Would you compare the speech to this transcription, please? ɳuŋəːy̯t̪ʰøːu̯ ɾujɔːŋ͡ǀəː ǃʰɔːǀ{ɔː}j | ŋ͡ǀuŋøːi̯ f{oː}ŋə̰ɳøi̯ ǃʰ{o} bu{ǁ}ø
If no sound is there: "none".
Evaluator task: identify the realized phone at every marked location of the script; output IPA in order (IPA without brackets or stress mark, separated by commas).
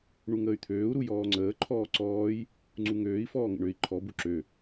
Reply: ɔː, ɔː, ɔ, ǁ